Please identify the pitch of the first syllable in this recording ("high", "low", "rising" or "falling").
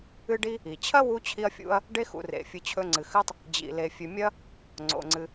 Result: high